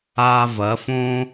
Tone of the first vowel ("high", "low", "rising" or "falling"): high